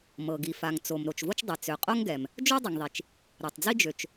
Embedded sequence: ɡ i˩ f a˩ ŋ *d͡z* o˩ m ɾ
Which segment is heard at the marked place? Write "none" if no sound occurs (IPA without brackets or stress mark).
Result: t͡s